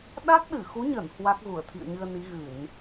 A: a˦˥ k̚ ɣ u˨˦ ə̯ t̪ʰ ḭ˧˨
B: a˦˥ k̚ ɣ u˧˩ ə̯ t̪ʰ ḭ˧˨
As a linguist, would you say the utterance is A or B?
B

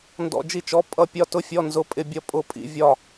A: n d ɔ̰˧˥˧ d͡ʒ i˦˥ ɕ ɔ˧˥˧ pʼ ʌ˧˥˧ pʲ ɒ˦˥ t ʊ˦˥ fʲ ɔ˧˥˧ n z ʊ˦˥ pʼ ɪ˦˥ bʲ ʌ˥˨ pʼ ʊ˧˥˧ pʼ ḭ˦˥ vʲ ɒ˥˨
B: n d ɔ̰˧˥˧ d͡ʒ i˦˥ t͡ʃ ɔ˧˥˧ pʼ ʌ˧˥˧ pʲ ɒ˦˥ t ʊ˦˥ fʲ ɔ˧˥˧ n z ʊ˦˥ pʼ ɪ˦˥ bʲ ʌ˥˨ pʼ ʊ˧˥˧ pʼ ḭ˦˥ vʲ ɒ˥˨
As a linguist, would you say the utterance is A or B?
B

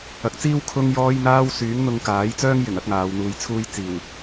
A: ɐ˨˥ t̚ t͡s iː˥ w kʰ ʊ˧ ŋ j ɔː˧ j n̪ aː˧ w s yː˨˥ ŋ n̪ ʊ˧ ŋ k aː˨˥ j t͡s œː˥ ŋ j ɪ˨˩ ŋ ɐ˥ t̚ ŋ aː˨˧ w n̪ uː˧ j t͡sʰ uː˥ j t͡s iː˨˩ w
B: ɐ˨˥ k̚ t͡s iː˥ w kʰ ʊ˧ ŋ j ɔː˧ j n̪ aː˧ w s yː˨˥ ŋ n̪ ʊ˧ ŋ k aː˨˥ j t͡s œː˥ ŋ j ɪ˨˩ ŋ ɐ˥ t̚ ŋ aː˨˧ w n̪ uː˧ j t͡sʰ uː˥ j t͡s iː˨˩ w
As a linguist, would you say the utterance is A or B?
B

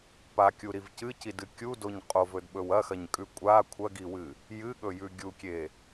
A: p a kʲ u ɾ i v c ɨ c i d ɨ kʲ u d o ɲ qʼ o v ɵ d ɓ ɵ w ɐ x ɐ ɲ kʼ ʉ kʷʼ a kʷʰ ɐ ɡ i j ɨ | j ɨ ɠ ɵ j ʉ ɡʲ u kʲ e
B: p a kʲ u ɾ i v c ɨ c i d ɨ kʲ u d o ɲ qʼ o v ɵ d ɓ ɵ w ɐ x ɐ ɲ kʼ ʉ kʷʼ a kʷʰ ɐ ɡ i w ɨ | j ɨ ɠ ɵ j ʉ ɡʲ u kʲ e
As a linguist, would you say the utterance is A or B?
B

